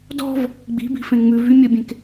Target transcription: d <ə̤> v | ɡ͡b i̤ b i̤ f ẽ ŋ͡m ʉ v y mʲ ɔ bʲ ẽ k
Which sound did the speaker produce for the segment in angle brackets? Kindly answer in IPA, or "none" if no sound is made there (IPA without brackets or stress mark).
ɔ̤